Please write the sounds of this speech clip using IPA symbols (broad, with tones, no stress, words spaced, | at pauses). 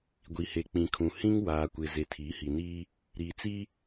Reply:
ɡʷi˨he˨k͡pĩ˨kʰũ˨ hĩ˦ŋwaː˨kʷɪ˨ ze˨tʰiː˨˦hi˨niː˦ | ɾiː˨t͡si˦